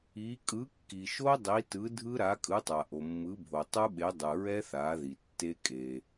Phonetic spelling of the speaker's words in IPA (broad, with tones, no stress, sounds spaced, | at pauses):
i˩˥ kʼ ɯ˩˥ kː i˩ ʃ o˦˥ dˤ i˩˥ t ɯ˩˥ dʱ ɯ˦˥ ɾ a˩˥ kʼ ɯ˩˥ tˤ a˩ ʔ o˩ mː ɯ˩˥ bʱ o˩ tˤ u˦˥ ɓ e˩˥ dˤ ɯ˩ ɹ ɛ˦˥ θ a˩˥ ð i˩ tː e˦˥ kʼ e˩